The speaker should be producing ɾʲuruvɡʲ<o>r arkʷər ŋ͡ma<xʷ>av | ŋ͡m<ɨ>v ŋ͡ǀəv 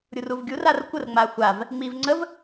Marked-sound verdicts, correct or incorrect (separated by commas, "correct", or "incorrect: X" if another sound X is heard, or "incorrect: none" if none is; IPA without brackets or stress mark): incorrect: u, correct, incorrect: i